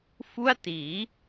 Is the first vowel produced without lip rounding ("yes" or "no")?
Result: no